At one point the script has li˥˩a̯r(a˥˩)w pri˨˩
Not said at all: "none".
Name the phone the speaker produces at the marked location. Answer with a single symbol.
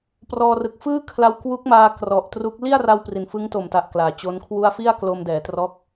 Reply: a˧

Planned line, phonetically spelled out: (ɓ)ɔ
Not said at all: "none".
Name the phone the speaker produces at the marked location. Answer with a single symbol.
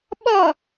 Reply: ɓ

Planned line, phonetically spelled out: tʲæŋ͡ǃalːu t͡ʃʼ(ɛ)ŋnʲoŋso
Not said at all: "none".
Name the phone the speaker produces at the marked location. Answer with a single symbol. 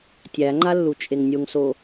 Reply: e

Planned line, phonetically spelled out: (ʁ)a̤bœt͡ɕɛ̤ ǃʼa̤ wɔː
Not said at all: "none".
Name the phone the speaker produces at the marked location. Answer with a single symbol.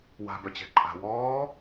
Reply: w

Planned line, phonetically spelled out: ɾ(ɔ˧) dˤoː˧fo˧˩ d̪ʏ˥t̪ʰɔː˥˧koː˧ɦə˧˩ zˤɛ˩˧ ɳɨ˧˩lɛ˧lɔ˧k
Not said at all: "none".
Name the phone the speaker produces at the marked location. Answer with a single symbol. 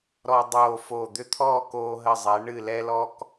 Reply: ɔ˧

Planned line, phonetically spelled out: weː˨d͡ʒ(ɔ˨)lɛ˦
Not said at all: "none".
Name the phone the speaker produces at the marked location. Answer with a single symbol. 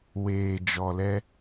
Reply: ɔ˨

